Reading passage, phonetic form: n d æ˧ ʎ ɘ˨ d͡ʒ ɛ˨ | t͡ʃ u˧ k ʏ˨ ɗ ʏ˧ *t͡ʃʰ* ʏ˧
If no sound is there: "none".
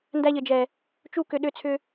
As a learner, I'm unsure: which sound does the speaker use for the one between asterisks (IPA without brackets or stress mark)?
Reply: t͡sʰ